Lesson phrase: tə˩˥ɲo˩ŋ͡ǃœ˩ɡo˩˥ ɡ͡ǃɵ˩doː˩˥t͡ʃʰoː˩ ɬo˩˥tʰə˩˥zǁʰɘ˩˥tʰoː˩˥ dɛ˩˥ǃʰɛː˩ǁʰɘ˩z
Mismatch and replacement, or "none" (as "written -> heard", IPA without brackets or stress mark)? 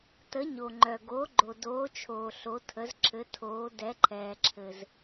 ɵ˩ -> o˩